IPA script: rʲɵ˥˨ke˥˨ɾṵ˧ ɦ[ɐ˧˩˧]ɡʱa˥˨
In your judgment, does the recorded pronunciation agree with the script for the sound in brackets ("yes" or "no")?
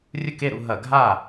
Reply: yes